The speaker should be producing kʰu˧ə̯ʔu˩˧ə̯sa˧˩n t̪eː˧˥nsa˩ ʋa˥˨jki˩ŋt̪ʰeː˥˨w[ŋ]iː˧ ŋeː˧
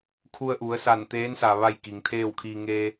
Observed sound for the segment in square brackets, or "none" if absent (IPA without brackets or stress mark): kʰ